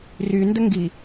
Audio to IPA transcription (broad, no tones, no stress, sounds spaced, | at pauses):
r y n d ə ŋ ɡ i